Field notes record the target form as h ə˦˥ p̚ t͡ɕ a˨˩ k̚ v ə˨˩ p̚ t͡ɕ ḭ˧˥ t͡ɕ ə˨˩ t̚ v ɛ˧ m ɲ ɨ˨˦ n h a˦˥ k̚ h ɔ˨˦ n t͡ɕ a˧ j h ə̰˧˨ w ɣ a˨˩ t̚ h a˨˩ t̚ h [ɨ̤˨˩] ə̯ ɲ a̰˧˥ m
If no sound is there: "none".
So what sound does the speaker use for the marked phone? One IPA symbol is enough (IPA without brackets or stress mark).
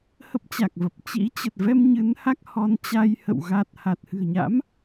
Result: ɨ̤˨˩